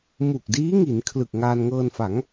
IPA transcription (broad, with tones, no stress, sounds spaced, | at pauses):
m u˨˩ k̚ d iː˦˥ ŋ i˩˦ n kʰ l ɯ˨˩ k̚ ŋ aː˧ n ŋ ɤː˧ n f a˩˦ ŋ